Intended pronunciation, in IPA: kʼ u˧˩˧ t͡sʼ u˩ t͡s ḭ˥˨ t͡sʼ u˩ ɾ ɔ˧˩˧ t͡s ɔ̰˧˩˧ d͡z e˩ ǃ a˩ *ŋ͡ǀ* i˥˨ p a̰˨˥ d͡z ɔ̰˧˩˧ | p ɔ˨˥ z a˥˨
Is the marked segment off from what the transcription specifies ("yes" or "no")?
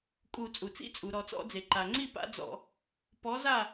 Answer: no